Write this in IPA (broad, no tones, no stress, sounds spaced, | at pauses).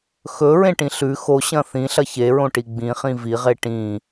x ɵ ɹ ẽ ʈ ĩ ɬ ʉ x o ɕ ɐ̃ θ ĩ ɬ ɐ ç e ɹ õ ʈ i ɡ͡b ĩ χ ĩ v i ʁ e ʈ ĩ